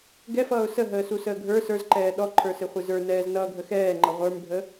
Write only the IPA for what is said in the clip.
ɡɛfʌːʊ̯ səɦəːsusəː ɡʱə˞ sə˞zǃɛː ɗɔǃʰə˞sɪχʷɪ zə˞nɛːznʌːɡʱə xɛːŋ͡ǃʌ ʁʷə˞mbʱə

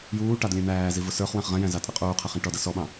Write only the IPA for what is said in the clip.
juːʈɑd lʲæ̃n̪æːzi vʊsə˞χwæ̃χ ʁɛ̃jæ̃ zɑtʼɛqʼuːqʰæχ ĩʈɔdʌ sɔɓɑ̃

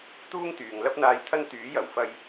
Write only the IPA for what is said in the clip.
t̪uː˥ŋt̪yː˨ŋ lɐ˧p̚n̪aː˨˧jt̪ʰɐ˧n t̪yː˨˥jɐ˨˩wfɐ˧j

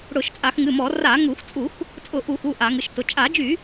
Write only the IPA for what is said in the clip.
ɽʊ˧˩˧ʃt͡sʼa˧˩˧xŋɨ˩˧˩mɔ˧˩˧ ra˧˩˧ŋu˧˩˧x t͡sʼu˧˩˧x | t͡sʼʊ˧˩˧ ʔu˧˩˧xu˩˧˩ ʔa˧˩˧ŋɨ˩˧˩ʃtʊ˩˧˩ t͡ʃʼa˧˩˧d͡ʒy˧˩˧

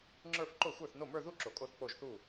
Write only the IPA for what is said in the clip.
ŋ͡ǁə˞˥˧f ǃo˥˩xʷə˞˥˩θno˥˩ mə˞˥˧ðu˥˧ ǁo˨kʼo˥˩θ k͡po˥˩ʒθu˥˩

